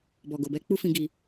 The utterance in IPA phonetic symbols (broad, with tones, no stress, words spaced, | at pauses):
bɔ˨ɡo˨bɛ˧ k͡pu˦fĩ˧ ɡi˧